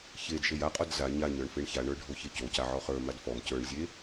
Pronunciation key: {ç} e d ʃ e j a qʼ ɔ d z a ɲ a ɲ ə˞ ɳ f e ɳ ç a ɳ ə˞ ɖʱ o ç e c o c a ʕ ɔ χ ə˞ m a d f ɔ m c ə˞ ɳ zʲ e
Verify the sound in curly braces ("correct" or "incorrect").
correct